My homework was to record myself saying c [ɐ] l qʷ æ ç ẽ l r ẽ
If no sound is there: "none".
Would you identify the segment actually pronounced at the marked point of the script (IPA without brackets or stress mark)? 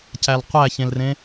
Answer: æ